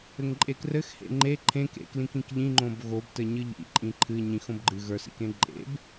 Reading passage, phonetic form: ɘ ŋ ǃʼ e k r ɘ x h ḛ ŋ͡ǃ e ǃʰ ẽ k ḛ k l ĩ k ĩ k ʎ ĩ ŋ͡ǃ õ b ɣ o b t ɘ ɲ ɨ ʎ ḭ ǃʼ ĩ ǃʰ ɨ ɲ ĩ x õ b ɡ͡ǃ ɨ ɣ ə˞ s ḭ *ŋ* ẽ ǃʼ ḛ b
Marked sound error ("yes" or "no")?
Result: yes